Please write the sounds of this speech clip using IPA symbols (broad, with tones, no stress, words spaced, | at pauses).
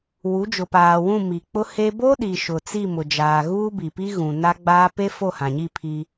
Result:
wu˨˦d͡ʒʊ˨paː˨wũ˦˨ mi˨ k͡pʊ˦he˦ bo˦ɗi˨ ʃʊ˨t͡si˦˨ mʊ˨d͡ʒaː˨ ɣuː˦bi˨pi˦ɣũ˨ na˦ɡ͡baː˦ pe˦ fo˦˨hã˨ɲi˦˨ pʰi˦